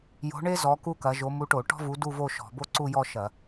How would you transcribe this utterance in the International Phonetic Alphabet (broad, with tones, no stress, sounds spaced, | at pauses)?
j o̤˨˥ ɳ e˥ z ɔ˨˥ k u˥ k ɐ˨˥ ʒ o˨˥ m u˨˥ ʈ o˧˩˧ ʈ ɔ̤˥ v u˨˥ d u˥˧ v o˥˧ ʃ ɔ̤˧˩˧ b o˥ ǀ u˥˧ j ɔ˥˧ ʃ ɐ˧˩˧